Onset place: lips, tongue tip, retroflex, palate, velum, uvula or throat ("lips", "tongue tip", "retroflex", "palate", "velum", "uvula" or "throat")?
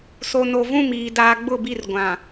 tongue tip